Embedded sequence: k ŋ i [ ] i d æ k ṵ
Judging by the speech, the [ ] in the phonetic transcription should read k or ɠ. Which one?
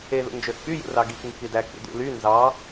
k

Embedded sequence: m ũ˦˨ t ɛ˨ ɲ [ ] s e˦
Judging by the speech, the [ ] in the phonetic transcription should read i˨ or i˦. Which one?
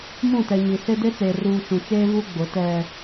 i˨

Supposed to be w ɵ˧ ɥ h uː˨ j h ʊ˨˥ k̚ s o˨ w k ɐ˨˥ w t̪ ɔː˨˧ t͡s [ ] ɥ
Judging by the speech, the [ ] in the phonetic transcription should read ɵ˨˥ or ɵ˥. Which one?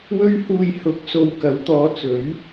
ɵ˨˥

